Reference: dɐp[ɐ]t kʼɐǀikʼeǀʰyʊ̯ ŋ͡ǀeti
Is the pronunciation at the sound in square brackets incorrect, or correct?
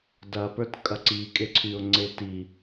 incorrect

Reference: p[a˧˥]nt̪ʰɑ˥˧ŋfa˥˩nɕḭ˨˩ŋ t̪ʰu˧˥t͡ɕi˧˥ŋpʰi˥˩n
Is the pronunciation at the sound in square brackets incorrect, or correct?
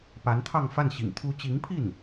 correct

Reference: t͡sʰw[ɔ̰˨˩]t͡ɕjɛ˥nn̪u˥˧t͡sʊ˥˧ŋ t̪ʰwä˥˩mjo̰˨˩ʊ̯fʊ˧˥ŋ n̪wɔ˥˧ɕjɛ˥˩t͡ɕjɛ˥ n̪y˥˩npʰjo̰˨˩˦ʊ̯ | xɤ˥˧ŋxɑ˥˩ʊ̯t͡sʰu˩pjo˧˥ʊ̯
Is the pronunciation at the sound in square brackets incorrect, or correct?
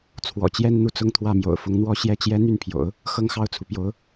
correct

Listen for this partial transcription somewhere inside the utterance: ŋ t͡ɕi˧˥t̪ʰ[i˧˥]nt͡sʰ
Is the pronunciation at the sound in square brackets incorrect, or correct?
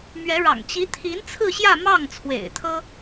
correct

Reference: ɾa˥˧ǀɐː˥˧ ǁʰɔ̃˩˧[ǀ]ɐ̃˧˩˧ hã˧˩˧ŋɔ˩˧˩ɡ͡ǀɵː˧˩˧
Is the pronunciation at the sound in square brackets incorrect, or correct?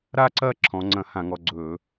incorrect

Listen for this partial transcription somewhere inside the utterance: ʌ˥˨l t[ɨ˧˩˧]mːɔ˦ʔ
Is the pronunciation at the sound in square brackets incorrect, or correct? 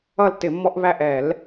incorrect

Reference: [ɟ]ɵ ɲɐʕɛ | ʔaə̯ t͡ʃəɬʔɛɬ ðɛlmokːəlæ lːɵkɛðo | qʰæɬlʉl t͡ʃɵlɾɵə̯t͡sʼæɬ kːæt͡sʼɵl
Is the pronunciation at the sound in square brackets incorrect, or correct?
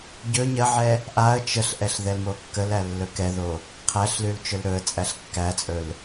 correct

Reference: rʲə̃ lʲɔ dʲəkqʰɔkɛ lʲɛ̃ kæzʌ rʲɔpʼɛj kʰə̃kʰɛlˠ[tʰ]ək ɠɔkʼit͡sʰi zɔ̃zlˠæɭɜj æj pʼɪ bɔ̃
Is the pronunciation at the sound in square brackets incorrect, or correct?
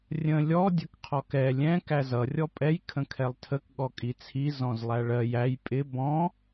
correct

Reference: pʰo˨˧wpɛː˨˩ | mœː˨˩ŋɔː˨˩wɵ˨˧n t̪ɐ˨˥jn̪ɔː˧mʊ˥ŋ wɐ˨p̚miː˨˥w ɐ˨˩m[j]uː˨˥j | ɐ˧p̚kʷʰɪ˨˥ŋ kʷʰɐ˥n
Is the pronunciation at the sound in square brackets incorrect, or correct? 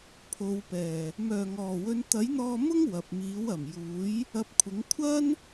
correct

